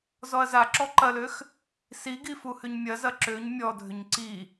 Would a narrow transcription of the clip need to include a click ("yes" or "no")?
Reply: yes